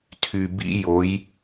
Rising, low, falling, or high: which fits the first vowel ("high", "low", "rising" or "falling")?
low